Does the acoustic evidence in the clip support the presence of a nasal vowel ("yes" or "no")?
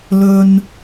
no